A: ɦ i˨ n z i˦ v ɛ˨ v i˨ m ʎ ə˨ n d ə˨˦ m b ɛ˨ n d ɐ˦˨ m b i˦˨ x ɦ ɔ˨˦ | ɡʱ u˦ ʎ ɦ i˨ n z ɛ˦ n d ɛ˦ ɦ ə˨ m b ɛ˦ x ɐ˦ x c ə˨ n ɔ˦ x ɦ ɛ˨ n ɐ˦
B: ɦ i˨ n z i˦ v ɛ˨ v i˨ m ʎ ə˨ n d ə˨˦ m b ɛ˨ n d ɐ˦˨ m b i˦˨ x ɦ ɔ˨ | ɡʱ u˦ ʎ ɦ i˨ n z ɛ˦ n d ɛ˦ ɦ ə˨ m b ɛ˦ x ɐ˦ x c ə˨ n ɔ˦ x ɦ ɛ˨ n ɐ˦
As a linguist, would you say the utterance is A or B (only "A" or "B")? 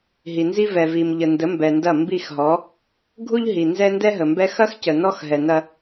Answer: A